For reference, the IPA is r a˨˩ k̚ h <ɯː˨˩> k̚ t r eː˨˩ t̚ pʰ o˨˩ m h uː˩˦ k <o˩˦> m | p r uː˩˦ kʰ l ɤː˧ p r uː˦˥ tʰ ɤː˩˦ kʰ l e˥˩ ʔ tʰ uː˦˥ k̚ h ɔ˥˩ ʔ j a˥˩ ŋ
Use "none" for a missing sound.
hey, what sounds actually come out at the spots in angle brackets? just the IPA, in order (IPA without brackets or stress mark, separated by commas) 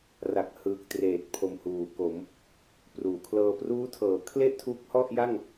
ɯː˨˩, o˩˦